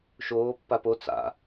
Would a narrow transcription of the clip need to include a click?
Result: no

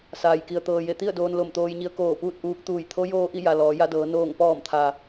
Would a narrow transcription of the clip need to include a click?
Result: no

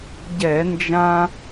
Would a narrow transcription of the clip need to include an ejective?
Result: no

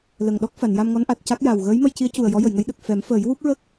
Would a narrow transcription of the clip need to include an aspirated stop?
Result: no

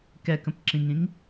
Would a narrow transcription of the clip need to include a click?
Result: yes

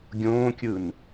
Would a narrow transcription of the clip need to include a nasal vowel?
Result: yes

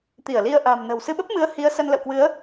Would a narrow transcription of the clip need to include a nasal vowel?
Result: no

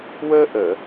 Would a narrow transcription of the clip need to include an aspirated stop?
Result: no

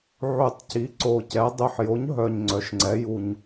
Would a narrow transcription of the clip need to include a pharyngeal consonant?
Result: yes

